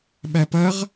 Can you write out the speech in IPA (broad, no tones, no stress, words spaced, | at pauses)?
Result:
ɓæpɐʁ